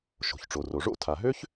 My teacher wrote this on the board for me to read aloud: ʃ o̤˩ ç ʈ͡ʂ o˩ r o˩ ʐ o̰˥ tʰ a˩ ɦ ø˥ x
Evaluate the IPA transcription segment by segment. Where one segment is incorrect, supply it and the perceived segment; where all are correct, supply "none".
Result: x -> ç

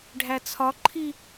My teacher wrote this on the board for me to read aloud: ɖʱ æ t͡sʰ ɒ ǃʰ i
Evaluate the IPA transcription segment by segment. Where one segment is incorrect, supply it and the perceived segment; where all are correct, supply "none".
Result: none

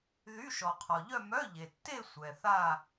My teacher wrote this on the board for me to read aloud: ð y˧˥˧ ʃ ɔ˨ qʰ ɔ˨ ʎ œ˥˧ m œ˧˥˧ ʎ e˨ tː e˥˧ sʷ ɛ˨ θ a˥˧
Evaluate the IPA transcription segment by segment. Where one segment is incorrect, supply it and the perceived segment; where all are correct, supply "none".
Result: none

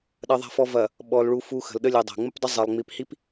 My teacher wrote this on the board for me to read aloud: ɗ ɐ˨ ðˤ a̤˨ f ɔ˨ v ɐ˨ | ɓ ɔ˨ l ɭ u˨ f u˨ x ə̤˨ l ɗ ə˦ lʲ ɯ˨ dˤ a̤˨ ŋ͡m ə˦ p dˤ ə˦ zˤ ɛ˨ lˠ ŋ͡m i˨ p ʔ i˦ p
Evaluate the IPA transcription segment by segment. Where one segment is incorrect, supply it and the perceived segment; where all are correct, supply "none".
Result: ʔ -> h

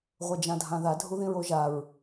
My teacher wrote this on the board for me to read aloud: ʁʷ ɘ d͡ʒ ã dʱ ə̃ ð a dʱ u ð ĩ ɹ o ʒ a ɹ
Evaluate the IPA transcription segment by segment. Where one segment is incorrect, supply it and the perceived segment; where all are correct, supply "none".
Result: ə̃ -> ã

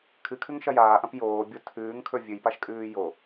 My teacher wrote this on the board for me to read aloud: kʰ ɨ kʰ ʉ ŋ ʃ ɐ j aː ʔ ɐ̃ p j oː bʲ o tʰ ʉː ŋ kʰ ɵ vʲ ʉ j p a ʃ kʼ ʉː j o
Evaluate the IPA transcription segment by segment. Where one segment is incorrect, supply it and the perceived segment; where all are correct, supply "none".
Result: none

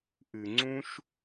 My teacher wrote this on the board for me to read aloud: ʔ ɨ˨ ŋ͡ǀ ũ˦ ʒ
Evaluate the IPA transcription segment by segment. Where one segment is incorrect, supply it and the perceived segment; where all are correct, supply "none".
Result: ʒ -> ʃ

